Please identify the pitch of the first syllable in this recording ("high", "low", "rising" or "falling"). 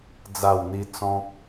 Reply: falling